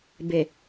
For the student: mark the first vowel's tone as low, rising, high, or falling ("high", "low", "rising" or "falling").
low